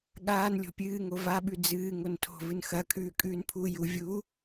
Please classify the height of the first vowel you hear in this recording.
low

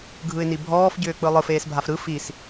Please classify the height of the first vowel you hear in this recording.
high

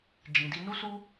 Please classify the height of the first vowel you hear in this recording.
high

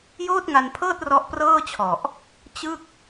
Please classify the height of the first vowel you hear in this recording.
mid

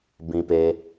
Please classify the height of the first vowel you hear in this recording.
high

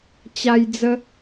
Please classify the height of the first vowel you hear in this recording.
low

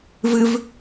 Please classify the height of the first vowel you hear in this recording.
high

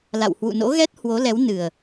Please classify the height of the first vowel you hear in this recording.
low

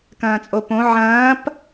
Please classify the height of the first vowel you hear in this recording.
low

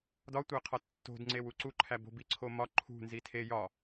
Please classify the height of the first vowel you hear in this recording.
low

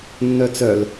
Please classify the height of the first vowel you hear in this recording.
mid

